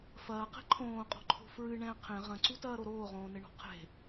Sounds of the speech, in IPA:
f ɐː q ɛ̤ ǃʰ õː qʼ ɔ̤ ǃʰ o̤ f ɹ ɨ ɳ ɛ̃ qʰ ẽ ʁ ɐ̃ ǀ u t ɐː ɾ o ɾ oː ʁ õː n ɘ ɳ ɔ̤ qʰ e̤

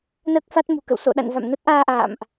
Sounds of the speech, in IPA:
n əː˦˥ k̚ f a˦˥ t̚ m ṳ˨˩ k ə̰˧˨ w s o̰˧˨ ɗ a̰˧˨ n v a̰˧˨ m n ə˦˥ t̚ ʔ aː˧ ʔ a̰ː˧˨ m ʔ

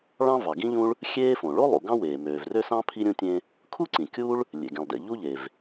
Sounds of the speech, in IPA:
ɭ ɑ̃˥ v ɑ˩ ɡ ĩ˥ ʎ ũ˥ ɭ | xʲ eː˥ f õ˩ ɭ o˥ lˠ ṵ˩ ɡ ɑ̃˥ w eː˩ m øː˩ v r ø˥ s ɑ̃˥ pʰ i˥ ɾʲ ũ˥ tʲ ẽ˥ | kʰ u˥ ǀ ĩ˩ kʲ u˥ ɭ | lʲ ḛ˩ ɡ ẽ˩ lˠ d ḛ˩ ʎ u˥ ʎ e˩ v

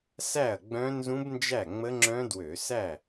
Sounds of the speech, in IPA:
s æ˥˩ ɐ̯ ɡ͡b œ̃˦˥ n z ũ˦˥ b n d͡ʒ æ˥˩ ŋ͡m ə˦˥ ŋ͡ǁ œ̃˦˥ d w ø˧˩˧ s æ˥˩

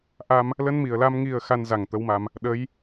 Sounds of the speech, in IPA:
ʔ a˧ m | l ə˧ n m i˨˩ ə̯ l aː˧ m ŋ i˨˩ ə̯ x a˧ n z a˧˩ ŋ t̪ ə˨˦ w m a˧ m | ɗ ə˨˦ j

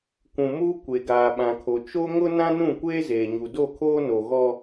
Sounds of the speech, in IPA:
kʷ ũ˨ m uː˦ kʷ e˨ ɡ aː˨ ɓ ã˨ kʰ o˨ t͡ʃ o˦ ŋ ʊ˦ n ã˦ n ũ˦˨ kʷ eː˦ z eː˨ ɲ u˨ d o˦˨ kʰ oː˦ n o˨ ɣ ɔ˦

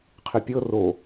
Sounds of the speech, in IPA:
qʰ ɪ pʲ ɤ r o

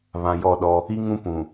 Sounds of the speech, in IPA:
β ã˨ j ɔ˦˨ ɗ ɔ˦ | i˦ ŋ ũ˦ p ũ˨

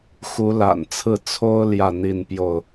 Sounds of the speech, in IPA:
x u˨˦ l a̰˨˩ n t͡sʰ ɹ̩˥˨ t͡sʰ o˦ ʊ̯ l j ä˥˨ n̪ i˥˨ n p j o˥˨ ʊ̯

